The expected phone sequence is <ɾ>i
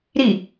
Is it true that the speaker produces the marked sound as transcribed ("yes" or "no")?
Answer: yes